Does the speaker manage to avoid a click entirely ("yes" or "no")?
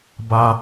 yes